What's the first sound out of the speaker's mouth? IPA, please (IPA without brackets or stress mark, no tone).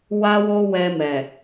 w